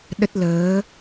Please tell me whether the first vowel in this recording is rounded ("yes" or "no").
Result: no